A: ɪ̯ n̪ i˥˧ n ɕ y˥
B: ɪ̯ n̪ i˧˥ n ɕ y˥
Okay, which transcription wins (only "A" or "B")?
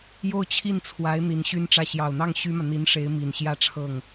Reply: B